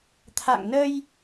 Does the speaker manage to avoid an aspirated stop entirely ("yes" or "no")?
no